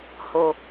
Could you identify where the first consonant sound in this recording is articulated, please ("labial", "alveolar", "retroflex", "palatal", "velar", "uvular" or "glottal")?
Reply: glottal